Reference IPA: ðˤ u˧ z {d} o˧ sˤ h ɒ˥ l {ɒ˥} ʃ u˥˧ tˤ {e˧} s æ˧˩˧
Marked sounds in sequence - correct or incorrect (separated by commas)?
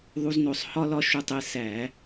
incorrect, correct, incorrect